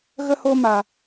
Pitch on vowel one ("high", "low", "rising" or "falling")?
high